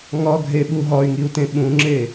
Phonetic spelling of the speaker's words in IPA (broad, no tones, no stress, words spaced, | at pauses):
ŋɒɡʱeɓu ɦɒy̯ŋiu̯tẽ ɓũŋ͡ǁe